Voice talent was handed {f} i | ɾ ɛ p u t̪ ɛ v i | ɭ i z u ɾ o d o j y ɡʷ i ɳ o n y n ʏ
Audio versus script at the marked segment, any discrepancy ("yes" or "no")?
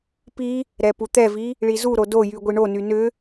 yes